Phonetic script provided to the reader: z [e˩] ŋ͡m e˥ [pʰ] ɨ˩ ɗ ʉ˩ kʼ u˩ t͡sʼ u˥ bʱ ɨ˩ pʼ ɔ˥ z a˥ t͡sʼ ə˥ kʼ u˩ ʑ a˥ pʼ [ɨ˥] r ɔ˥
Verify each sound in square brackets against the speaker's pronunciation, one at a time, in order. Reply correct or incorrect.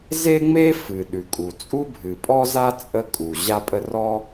incorrect, incorrect, incorrect

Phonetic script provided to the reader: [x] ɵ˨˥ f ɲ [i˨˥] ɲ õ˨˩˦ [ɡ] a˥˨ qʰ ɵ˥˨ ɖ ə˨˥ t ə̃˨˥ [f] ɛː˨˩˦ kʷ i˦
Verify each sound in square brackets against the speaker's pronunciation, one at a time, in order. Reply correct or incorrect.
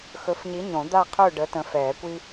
correct, correct, incorrect, correct

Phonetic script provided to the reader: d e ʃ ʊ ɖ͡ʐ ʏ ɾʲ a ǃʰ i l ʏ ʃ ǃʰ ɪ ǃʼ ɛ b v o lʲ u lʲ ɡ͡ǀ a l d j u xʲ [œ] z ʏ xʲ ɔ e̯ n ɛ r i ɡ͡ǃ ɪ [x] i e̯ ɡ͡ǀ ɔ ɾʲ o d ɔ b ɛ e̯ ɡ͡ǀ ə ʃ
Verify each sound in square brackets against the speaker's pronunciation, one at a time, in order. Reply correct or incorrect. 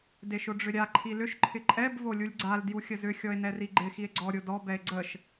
incorrect, correct

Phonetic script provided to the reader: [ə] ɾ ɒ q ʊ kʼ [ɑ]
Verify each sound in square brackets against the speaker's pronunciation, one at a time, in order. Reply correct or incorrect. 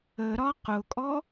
correct, incorrect

